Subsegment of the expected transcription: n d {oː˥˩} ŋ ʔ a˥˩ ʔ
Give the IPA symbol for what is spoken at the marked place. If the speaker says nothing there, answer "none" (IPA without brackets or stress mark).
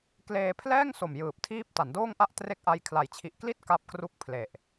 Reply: oː˥˩